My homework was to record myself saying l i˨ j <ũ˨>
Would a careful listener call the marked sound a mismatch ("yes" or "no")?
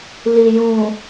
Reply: no